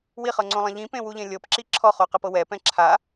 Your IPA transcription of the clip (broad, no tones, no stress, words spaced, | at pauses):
wiχɤŋ͡ǀõlˠẽ ʎĩpẽwuʎẽ lʲɤpǁi ǁʰɔχoqɛpɤ wɛpɛ̃ ǁʰa